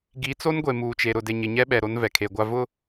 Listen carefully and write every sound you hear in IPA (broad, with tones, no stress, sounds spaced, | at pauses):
ɡ i˨˦ t͡s o˦ n ɡʷ e˨ m uː˨ t͡ʃ e˨ ɾ ʊ˨ d e˨ ɲ ɪ˨ ɲ ɛ˦ ɓ ɛ˨ ɾ o˦ n v ɛ˨ kʰ e˨ ɡʷ a˦ v ʊ˦